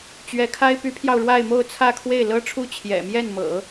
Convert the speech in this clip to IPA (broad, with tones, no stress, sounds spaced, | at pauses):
t͡ɕ ɥ ɛ˧˥ kʰ a˥ ɪ̯ p y˧˥ pʰ j ɑ˧ ʊ̯ ɻ w a˥˧ ɪ̯ m o˥˧ ʊ̯ t͡sʰ ä˥˧ kʰ w e˥˩ ɪ̯ l ɤ˥ ʈ͡ʂʰ u˥˩ t͡ɕʰ j ɛ̰˨˩ m j ɛ˥˩ n m ɤ̰˨˩˦